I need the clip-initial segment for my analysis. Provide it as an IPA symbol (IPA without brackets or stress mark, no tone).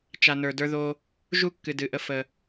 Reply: t͡ʃ